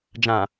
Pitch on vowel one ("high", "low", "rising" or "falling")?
low